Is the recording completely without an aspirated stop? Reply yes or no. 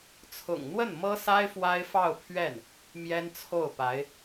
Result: no